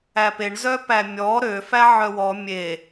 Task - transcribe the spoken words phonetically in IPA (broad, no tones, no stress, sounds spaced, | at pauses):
æ p e ɳ z œ p æ mʲ ɔ ɾ ø f æ ʕ œ w ɔ mʲ e